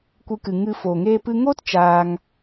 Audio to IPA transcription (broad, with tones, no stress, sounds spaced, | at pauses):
kʷ ɨ˧ k ɨ˨ ŋ ɨ˧ f oː˨ ŋ eː˦ p ɨ˦ ŋ oː˦ t t͡ʃ aː˧ ŋ